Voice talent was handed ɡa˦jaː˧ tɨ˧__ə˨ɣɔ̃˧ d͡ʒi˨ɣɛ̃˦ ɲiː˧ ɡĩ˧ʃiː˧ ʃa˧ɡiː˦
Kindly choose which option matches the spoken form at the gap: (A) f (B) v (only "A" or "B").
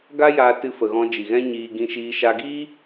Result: A